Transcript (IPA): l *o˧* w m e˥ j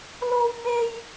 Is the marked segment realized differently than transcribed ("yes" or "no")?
yes